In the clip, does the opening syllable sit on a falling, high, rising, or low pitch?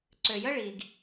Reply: low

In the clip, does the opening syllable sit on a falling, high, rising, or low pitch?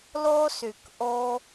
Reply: high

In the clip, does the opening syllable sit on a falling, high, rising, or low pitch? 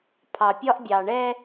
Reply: low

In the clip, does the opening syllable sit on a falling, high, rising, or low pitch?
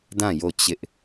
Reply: falling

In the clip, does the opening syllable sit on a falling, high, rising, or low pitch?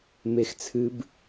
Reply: high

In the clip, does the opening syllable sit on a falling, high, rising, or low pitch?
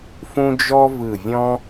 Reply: high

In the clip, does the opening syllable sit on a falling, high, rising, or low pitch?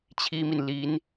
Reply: high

